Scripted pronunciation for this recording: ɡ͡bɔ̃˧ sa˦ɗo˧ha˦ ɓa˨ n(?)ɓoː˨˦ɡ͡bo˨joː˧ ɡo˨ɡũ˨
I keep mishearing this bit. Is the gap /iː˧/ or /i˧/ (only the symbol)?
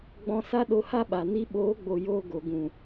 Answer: i˧